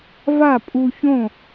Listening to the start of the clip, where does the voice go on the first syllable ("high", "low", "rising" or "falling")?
falling